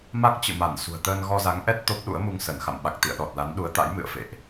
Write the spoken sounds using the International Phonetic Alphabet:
ma˦˥k̚t͡ɕɨ̰˧˨ma˧˩n sṳ˨˩ə̯t̪əː˧n ɣɔ˧za˨˦ŋʔɛ˦˥t̚ t̪o˦˥p̚ɗṵ˧˥ə̯mu˧ŋ sə˧˩n xa̰˧˨mɓa˨˩k̚t̪ḭ˧˨ə̯ɗɔ˨˩t̚ la˨˦nɗu˨˦ə̯t̪a̰˧˥j mɨ̰˧˨ə̯fḛ˧˨ʔ

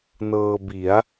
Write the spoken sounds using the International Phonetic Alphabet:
nɤː˧bi˩˦a̯

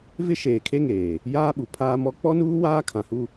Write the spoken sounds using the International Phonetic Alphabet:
vɪ˦ʃeː˨kʰe˦ŋeː˨ | jaː˦ɓu˨pʰaː˦mɔ˦ k͡pɔ˦nuː˦ waː˦kʰã˨hu˦

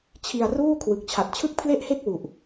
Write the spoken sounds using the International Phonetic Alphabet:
t͡ɕʰi˧a̯ruː˥˩ kʰwɯ˨˩k̚t͡ɕʰa˨˩t̚ t͡ɕʰɯ˥˩k̚pʰle˥˩ʔhe˥˩k̚ wu˨˩ʔ

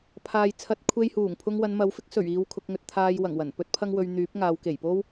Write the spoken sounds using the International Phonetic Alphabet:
pʰaː˨jt͡sʰɐ˨˥t̚ kʷʰe˧jhuː˨˩ŋpʰʊ˧ŋ wɐ˨˧nmɐ˨˧wfɪ˥k̚ sɵ˨˩ɥ iː˧wkʰʊ˧k̚ŋɵ˧t̚ t̪ʰaː˧j wɐ˨˩ŋ wɐ˨˩npɵ˥t̚ pʰɐ˥ŋwɵ˧ɥ n̪yː˨˥p̚ŋaː˨˧wke˨˩j po˥w

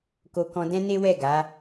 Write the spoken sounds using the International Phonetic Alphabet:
ko˧kɔ̃˧ dɛ̃˦ne˦wɛ˦˨ ɡa˨˦

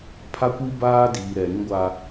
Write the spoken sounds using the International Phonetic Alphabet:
pʰa˦kʷi˦ baː˦diː˨ ɾɛ˨ɾĩ˦ɡʷa˦

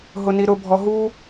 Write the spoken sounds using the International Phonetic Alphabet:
ɦʊniɾʊbʱɔ ɦu

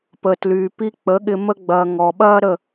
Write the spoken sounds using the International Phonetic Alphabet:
pə˨tlyː˨pi˧ k͡pə˨˦ɠɪ˧ mə˧ɡ͡bɐː˨ ŋɔ˨ɓɐː˦ɾə˦˨

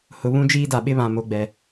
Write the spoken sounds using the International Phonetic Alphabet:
hʊ˨βũ˦ d͡ʒiː˦da˨ɓɪ˦βã˨ mo˨ɡ͡bɛ˨

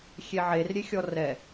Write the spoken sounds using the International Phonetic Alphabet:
xʲeʕerɾʲe xʲɔrɛ

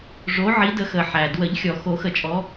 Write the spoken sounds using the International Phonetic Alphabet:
ʐo˨˦ ʕi˨˦də˨˦xə˩ ħæ˩dwə˨˩˦ʎ xʲɔ˩ xo˨˩˦xə˨˩˦ t͡ʃʼɔ˨˦

